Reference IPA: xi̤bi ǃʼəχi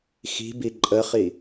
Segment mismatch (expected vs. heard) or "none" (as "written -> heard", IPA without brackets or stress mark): none